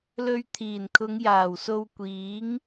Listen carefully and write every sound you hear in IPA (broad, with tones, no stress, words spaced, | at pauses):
lɵ˧ɥ t̪ʰiː˨˩nkʰʊ˨˧ŋ jaː˨˩wso˧wkʷiː˨˥ŋ